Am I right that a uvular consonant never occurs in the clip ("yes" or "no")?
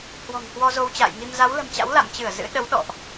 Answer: yes